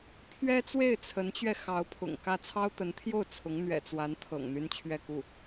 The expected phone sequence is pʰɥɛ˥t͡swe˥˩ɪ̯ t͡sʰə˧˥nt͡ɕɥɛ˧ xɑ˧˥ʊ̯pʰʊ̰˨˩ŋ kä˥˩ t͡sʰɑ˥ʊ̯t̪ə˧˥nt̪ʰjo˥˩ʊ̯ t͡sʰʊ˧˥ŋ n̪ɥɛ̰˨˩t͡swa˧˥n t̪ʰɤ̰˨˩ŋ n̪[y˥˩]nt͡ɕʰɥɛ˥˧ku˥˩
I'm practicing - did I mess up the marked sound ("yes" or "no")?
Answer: yes